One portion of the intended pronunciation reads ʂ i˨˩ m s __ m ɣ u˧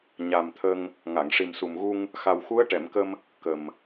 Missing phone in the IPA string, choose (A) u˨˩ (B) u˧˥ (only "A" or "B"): A